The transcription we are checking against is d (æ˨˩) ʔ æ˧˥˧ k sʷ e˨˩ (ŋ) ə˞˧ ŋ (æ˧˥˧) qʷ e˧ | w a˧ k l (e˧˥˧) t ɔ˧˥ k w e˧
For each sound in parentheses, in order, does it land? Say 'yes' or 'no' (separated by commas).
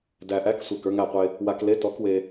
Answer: yes, no, no, yes